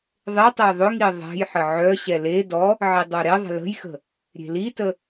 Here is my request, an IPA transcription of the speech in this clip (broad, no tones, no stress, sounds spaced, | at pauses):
ðˤ e tˤ ɛ j ðˤ ʊ ŋ i ðˤ ɛ̤ j ħ ə ʕ œ ɕ ɛ l e d ɔ | ʕ i dˤ œ ɾ e ðˤ ə̤ l ə̤ j x ə̤ | ɾʲ e̤ l i t ə